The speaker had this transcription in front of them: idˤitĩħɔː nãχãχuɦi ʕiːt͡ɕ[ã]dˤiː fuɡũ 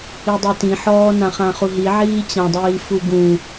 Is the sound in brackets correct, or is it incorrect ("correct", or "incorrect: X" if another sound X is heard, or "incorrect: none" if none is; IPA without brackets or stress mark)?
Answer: correct